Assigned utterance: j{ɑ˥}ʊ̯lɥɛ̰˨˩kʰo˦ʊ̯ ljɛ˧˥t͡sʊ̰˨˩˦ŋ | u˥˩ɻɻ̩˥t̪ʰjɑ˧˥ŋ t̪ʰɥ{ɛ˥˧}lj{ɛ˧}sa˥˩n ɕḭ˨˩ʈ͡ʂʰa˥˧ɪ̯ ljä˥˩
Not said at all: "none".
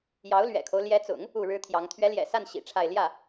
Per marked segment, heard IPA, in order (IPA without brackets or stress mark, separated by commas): ɑ˧˥, ɛ˧˥, ɛ̰˨˩